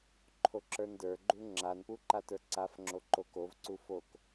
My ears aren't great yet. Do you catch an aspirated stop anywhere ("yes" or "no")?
yes